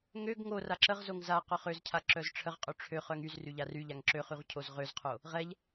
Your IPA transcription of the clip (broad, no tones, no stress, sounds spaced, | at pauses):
ŋ ø ɡ ŋ o r a ǁ ə ʁ z o ŋ z a q œ χ ø z cʰ a ǁ œ z ʈ͡ʂʰ ə ʁ qʼ ø ʈ͡ʂʰ ø χ œ ŋ y z r y ʎ a r y ʎ a ŋ ǁ ø χ y ʁ cʰ o z ʁ ø z qʰ o | ʁ ɛ ʎ